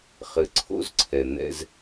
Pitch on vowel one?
low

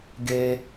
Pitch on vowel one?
high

